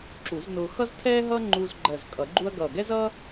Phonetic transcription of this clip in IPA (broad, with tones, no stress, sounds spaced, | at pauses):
ǁ u˨˩˦ z n ʊː˧ x ʌ˥ z tʰ ɛː˥ ɦ ʌː˥ ŋ͡ǃ uː˧ z ɡ͡ǃ ɜ˨˩ z kʼ ʌ˨˩˦ ɡ͡ǃ u˥ ɐ̯ ɡ ʌː˨˩ ɡ ɛ˥ z ʌː˥